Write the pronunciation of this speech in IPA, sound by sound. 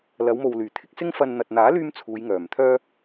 lɐ˨˧wmo˨w lyː˨˩t̪ʰɪ˧k̚sɪ˥ŋ fɐ˧n n̪ɐ˨t̚n̪aː˨˥lyː˧m t͡sʰuː˨˧jŋœː˨˩mt̪ʰœː˥

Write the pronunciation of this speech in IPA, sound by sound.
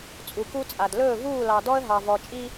t͡sʼu˨ku˦t͡sʼa˨d lɵː˦˨vuː˦˨lɑ˨ dɔ˦ə̯ɦɑ˨vɔ˨t͡ʃʼi˦

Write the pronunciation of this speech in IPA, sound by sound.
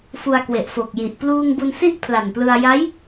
fu˧a̯kwe˨˩ʔ fo˨˩k̚ji˨˩ʔ pluː˧ŋbu˧nsi˥˩ʔ pʰla˨˩nplɯ˧a̯ ja˦˥j

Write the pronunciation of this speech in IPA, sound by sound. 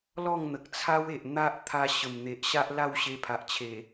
lɔ˥˧ŋn̪ə˨k̚t͡sʰa˦we˨ʔ n̪a˦ʔ t̪ʰa˧ ɕə˨˩mn̪e˨ʔɕa˦ʔ la˥˧wɕe˧pʰa˨ʔt͡ɕʰe˨˩

